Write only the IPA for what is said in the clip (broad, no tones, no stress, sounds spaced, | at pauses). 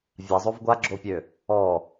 vʲ a zˤ o v ɡʷ a ɡ͡ǁ o pʲ ø | ɔ